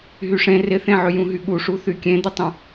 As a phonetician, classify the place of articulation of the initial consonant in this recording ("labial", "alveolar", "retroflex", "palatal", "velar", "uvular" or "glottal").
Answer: glottal